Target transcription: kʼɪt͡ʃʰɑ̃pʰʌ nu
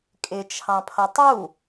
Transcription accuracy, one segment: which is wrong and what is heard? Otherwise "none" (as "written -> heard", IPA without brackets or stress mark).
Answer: n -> tˤ